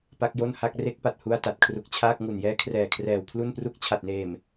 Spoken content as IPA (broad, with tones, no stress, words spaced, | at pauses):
pa˦˥k̚jo˥˩nha˥˩k̚ re˦˥k̚pa˨˩t̚hu˧a̯ ta˨˩t̚kʰru˨˩k̚t͡ɕʰaː˥˩k̚ ŋu˨˩njɛː˦˥kʰrɛː˨˩kʰrɛː˨˩w pʰlu˥˩npru˥˩k̚ t͡ɕʰa˨˩t̚neː˨˩m